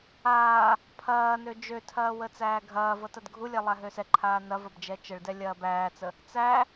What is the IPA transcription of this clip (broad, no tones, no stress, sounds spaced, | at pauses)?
aː | pʰ ɐː n ø d͡ʒ ø tʰ ɐː w ə t͡s æː ɡʱ ɐː v ɤ t ɐ d ɡʱ u lʲ ɛ lˠ æ ɦ ø s ɛ ǃʰ aː n ɐ v ɐ b d͡ʒ ɛ t͡ʃ ə ɭ d ɛ lʲ ɐː b æː t͡s ə | t͡s æ